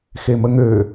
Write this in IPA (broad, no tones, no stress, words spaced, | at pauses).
xeməŋø